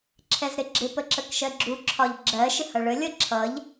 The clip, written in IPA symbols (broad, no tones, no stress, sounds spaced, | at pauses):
ǁʰ ɛ z ɾ ɪ ɡ͡ǁ ɪ p ə ǁ ə k ʃ ɜ ɡ͡ǁ u ǁʰ ɒ ʎ ɡ͡ǁ ɜ ʃ ɪ h ʌ ɭ ə lʲ ʌ ǁʰ ʌ ʎ